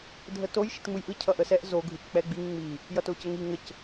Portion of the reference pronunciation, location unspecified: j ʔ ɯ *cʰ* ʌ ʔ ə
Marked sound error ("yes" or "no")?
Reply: no